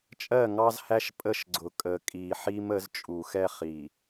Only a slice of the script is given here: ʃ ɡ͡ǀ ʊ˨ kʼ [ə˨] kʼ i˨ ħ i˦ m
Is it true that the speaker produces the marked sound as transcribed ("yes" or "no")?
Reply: yes